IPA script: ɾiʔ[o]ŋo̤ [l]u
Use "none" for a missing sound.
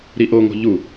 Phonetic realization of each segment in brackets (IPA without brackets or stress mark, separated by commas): o, ʎ